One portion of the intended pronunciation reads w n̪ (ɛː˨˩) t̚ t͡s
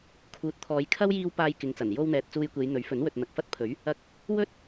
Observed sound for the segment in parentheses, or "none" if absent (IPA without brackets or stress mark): ɛː˨